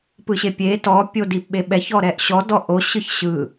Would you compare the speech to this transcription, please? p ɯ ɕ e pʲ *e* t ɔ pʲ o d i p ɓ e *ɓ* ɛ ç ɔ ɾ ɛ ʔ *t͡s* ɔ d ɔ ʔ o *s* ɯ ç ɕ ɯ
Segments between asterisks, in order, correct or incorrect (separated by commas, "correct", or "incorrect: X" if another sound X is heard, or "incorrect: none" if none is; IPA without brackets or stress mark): correct, correct, incorrect: ɕ, incorrect: ɕ